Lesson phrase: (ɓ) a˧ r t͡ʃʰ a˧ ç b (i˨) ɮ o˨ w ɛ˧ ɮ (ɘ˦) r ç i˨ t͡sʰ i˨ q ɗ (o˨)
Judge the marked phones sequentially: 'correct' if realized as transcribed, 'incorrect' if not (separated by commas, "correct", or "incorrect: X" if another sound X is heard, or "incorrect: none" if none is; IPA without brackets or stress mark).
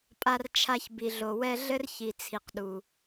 incorrect: pʼ, correct, correct, incorrect: u˨